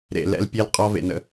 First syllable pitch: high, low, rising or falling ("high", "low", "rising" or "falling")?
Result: low